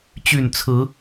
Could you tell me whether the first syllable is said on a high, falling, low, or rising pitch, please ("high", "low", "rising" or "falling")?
falling